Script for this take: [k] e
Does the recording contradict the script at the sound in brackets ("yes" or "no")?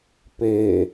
yes